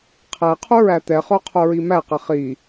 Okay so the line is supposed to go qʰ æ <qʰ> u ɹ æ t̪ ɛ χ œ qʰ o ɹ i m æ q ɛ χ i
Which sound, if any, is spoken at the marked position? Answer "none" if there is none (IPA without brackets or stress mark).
qʰ